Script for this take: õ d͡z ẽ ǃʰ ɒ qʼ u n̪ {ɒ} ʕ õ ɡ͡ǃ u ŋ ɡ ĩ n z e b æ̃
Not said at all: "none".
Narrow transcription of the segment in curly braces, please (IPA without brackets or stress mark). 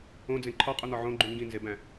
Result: ɒ